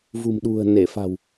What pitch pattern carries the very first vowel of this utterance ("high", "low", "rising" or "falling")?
low